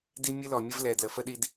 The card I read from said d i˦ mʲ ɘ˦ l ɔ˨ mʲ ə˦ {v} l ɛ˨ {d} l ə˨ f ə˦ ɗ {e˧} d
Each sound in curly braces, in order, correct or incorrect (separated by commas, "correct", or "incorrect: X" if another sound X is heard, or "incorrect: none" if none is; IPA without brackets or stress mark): correct, correct, incorrect: i˧